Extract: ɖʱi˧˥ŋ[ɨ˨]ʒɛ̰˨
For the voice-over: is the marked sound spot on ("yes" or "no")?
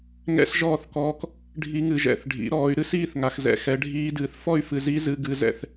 yes